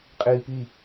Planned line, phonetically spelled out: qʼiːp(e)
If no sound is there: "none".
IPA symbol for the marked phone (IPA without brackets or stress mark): i